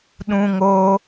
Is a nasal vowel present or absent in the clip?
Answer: present